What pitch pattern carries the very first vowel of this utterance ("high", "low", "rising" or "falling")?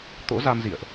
rising